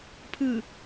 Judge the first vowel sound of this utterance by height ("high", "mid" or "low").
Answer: high